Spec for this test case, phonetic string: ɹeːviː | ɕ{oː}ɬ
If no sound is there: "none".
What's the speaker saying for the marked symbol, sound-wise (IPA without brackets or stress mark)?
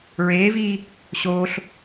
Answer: oː